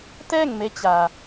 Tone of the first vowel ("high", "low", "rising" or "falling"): falling